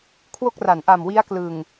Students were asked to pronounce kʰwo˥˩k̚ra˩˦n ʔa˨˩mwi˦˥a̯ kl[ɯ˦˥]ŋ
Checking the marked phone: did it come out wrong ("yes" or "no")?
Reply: yes